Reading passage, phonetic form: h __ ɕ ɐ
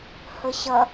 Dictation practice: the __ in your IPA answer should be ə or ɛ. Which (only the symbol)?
ə